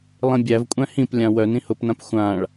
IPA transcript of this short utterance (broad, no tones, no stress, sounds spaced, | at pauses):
lˠ ĩ bʲ æ v kʷʼ æ̃ h ĩ p lʲ ã w œ n ĩ h ʊ p n ã p xʷ ã ɭ